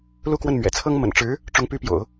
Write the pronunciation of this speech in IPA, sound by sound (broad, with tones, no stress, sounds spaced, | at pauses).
l u˥˧ k w ə˥˩ n m ɥ ɛ̰˨˩ t͡sʰ ɤ˥ ŋ m ə̰˨˩ n ʈ͡ʂ ɻ̩˧˥ | ʈ͡ʂ ʊ˧˥ ŋ p y˧˥ p j o̰˨˩˦ ʊ̯